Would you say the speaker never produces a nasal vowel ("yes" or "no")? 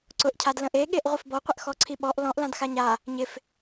no